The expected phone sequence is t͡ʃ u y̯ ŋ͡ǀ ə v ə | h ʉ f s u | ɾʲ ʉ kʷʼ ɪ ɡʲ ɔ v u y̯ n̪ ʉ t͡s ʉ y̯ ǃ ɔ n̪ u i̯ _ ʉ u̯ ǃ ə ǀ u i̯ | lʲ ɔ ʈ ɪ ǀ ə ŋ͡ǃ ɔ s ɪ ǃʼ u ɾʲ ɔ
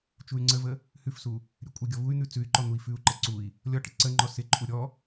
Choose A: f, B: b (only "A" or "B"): A